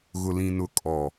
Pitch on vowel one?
low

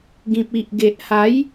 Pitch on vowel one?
low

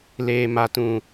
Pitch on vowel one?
low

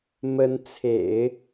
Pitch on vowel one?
rising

